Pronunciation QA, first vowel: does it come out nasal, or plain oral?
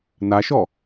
oral